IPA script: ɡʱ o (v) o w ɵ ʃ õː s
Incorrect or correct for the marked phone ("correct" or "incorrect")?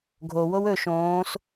incorrect